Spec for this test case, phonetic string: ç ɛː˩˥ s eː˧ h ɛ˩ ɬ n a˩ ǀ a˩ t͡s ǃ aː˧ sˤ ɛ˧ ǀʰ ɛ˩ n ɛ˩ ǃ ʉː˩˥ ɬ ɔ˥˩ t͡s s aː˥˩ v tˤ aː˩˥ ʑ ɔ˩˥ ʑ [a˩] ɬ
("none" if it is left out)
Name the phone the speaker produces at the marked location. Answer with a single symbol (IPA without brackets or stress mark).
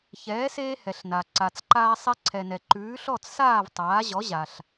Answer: a˩